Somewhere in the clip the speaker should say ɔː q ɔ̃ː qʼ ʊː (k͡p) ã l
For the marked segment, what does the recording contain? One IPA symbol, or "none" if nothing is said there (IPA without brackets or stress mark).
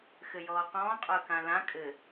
k